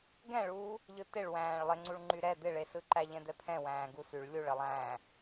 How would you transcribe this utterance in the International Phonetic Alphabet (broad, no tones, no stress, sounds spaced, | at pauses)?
ɡ ɛ̃ ɭ uː | ʎ ɯ t ɪ ɭ w æ̃ː ɭ lˠ ɪ ŋ͡ǀ u ɭ ŋ͡ǃ y ɾ ɛ d̪ ɪ ɭ e s ɯ ǃ æ ʎ ɛ̃ d̪ ɛ pʰ ɛ̃ w æ̃ː ɡ u s y ɭ lʲ u ɭ ə lˠ æ̃ː